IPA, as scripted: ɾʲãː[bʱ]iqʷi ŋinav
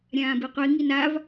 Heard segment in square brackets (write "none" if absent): b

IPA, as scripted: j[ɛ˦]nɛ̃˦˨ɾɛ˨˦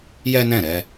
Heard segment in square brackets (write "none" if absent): ɛ˦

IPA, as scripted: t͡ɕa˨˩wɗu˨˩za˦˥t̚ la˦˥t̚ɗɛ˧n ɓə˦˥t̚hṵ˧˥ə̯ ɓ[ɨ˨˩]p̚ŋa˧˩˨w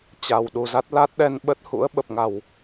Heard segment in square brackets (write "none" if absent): ə˨˩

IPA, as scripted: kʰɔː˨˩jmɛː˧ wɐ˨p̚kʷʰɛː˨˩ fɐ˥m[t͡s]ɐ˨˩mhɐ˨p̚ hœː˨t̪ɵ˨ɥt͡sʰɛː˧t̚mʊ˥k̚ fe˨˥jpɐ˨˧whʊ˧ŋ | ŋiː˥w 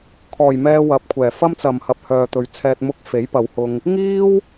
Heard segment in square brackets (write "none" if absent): t͡s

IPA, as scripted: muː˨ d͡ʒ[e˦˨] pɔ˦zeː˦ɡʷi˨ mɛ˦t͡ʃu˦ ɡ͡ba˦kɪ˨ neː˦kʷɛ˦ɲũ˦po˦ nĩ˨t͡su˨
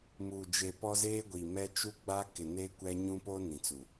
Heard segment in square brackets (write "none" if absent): e˨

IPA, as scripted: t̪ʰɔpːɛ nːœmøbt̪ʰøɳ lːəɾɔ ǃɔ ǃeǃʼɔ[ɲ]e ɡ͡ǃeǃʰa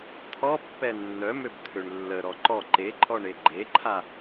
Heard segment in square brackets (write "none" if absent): ɳ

